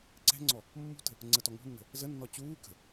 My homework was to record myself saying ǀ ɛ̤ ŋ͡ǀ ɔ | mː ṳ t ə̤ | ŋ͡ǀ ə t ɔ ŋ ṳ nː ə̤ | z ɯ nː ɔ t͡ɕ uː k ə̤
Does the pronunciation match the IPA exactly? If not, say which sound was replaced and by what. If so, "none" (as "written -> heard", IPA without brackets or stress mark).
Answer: ɯ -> ə